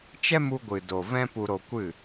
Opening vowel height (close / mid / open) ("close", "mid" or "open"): mid